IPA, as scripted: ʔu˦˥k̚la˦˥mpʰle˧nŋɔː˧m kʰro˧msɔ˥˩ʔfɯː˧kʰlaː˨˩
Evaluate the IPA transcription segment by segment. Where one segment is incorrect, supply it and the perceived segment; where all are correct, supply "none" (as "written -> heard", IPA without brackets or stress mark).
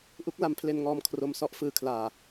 none